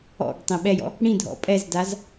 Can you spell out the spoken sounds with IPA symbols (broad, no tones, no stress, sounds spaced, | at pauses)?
ɔ̰ ɡ tˤ ẽ ɓ ɛ j ɔ̰ | ɽ ĩ dʱ ɔ̰ pʼ ɛ z d a z